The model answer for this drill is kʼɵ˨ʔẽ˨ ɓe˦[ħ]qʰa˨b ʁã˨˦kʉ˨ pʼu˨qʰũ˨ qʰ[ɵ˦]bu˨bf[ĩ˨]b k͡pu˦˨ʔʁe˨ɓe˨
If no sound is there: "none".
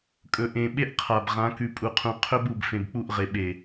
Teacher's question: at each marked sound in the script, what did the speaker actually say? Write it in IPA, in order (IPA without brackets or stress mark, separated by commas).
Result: ʔ, ɵ˦, ẽ˨